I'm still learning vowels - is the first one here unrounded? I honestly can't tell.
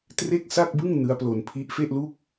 yes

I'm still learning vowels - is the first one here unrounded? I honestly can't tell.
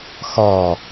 no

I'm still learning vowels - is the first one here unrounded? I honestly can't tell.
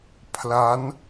yes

